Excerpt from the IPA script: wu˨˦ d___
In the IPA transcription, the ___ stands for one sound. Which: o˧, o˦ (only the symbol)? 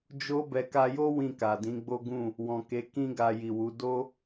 o˦